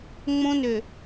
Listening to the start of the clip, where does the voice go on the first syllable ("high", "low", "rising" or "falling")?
high